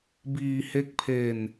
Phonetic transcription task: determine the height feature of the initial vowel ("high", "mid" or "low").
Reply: high